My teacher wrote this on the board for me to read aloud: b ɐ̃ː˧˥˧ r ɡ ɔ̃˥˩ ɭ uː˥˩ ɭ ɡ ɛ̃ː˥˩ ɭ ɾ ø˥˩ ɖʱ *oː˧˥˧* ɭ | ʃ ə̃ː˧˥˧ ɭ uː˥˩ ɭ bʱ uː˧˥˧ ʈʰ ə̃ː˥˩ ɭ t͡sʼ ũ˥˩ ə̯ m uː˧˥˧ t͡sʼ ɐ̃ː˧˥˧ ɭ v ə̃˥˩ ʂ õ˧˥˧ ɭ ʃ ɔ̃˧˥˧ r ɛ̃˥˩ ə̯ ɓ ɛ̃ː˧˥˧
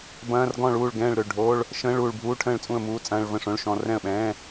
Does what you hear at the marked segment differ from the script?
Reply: no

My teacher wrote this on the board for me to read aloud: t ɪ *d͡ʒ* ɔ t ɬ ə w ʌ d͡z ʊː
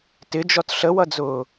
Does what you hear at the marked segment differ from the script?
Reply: no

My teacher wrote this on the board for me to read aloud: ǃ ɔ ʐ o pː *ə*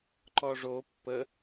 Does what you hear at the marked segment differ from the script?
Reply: no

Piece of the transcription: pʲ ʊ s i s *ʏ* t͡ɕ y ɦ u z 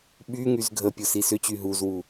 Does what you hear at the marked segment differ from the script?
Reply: no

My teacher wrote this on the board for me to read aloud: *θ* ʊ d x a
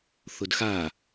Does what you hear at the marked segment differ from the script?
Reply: no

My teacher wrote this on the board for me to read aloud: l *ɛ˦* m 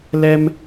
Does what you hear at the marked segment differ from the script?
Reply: no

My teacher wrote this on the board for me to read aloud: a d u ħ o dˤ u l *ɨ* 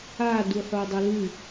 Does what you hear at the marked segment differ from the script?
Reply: no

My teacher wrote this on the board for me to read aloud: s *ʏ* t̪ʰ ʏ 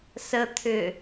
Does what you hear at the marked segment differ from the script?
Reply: yes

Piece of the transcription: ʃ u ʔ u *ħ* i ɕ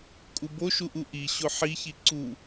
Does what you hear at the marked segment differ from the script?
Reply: yes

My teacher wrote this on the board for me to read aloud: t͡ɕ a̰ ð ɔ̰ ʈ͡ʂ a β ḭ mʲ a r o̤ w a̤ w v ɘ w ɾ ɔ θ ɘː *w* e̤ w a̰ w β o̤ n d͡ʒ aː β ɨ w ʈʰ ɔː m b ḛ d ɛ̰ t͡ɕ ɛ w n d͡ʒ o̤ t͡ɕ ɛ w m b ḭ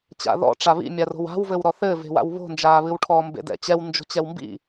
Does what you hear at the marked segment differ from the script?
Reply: yes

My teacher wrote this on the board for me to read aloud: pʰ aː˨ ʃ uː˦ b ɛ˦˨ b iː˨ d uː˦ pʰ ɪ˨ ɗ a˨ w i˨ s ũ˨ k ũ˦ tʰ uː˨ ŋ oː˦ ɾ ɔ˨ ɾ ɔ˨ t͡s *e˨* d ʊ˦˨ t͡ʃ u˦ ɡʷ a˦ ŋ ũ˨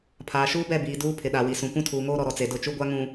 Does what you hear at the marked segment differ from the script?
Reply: no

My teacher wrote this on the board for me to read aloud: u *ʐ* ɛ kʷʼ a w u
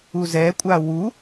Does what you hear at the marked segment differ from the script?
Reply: yes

